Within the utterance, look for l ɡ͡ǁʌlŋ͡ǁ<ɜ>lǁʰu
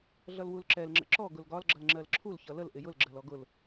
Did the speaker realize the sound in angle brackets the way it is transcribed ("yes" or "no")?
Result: yes